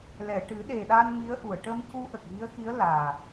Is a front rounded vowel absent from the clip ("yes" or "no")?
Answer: yes